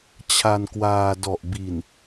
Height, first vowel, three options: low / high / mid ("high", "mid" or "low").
low